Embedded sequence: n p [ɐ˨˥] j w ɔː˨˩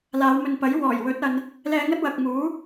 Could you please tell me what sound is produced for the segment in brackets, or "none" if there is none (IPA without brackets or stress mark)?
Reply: ɐ˨˥